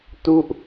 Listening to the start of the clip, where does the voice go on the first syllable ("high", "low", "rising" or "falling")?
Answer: falling